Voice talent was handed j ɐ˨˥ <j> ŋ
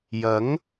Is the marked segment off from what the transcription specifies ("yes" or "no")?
yes